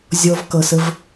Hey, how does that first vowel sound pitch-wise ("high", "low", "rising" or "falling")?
high